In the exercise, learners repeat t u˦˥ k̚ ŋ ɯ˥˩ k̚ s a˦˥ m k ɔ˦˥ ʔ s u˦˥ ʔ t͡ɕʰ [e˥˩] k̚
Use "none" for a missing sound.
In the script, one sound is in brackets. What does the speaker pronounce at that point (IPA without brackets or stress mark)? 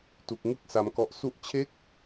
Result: e˥˩